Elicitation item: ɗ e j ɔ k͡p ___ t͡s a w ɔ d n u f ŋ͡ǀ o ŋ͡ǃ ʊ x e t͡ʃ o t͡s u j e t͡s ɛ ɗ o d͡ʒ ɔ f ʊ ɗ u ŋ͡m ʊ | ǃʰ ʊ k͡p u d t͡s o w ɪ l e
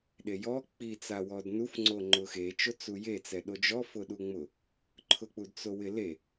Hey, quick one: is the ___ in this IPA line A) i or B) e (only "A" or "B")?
A